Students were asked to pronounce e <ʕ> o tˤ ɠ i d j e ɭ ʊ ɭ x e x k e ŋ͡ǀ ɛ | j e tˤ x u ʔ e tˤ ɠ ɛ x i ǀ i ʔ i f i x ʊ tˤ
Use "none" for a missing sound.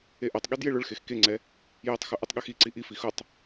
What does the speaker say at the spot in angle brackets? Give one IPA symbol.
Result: ʔ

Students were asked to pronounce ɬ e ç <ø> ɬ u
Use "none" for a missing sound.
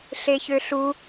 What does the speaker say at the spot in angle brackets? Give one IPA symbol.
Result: ø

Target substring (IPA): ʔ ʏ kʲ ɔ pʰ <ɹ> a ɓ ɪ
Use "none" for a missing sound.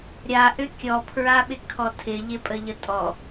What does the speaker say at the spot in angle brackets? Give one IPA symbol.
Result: ɹ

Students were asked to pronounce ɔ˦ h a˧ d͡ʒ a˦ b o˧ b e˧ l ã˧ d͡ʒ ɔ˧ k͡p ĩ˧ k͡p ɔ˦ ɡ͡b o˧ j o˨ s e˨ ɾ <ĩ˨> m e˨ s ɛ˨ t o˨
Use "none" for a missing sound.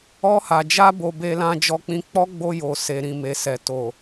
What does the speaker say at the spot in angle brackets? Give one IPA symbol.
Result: ĩ˨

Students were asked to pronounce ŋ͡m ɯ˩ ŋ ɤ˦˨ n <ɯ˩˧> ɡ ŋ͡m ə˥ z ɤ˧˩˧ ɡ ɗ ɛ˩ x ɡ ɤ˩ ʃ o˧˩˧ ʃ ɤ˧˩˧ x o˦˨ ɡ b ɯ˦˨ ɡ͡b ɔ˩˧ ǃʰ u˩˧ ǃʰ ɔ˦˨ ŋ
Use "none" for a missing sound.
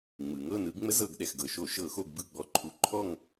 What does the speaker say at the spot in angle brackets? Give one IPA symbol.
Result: ɯ˩˧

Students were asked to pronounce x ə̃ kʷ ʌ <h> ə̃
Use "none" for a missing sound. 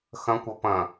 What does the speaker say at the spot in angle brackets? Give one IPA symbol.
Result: p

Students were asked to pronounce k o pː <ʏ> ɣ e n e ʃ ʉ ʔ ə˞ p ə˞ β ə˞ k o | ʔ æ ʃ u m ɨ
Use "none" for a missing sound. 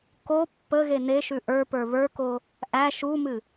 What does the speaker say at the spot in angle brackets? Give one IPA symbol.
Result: ə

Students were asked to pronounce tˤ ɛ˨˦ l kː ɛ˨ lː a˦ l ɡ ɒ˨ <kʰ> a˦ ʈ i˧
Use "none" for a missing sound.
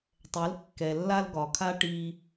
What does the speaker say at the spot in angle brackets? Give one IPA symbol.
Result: kʰ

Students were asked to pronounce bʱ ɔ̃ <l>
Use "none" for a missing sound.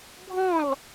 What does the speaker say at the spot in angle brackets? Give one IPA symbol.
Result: l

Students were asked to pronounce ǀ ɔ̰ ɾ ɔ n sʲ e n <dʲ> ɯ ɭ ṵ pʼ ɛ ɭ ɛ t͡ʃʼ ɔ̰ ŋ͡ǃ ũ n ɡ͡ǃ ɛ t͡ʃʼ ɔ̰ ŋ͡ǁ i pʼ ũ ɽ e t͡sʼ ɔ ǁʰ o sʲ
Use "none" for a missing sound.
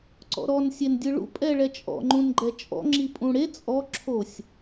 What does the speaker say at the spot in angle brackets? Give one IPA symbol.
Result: dʲ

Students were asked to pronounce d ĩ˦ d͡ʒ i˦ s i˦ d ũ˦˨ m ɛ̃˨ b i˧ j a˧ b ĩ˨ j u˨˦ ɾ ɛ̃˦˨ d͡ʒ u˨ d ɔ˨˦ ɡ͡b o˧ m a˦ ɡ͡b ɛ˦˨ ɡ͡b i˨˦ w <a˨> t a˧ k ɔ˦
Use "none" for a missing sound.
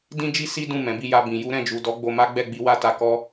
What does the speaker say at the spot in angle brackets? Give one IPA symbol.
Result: a˦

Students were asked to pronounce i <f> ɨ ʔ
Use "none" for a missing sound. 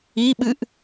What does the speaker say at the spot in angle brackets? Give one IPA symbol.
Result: ɓ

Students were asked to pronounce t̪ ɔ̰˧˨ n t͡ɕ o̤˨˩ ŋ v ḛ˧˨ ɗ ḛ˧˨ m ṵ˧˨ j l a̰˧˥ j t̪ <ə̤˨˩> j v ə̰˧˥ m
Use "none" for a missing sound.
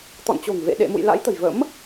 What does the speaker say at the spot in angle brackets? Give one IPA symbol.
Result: ə̤˨˩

